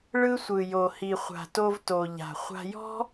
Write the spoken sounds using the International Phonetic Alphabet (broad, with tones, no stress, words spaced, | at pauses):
ɭɯ˥sʷɯ˩ jo˩hi˩χʷa̤˩to˧v to˩ ʎa̤˩ χʷa̤˧jɔ̤˥